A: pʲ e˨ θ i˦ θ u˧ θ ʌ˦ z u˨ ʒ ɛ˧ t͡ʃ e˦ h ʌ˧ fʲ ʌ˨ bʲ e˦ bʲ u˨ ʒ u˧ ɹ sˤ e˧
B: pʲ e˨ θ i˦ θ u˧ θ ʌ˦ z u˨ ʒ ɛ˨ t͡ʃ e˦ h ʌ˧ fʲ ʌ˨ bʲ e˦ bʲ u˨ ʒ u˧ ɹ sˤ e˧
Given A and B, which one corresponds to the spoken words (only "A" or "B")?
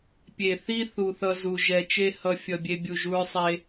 B